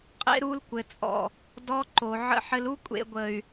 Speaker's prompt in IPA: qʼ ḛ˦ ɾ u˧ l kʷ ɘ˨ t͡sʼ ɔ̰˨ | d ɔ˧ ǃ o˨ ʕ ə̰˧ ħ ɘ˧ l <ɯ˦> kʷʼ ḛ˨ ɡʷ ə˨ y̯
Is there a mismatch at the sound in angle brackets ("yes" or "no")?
yes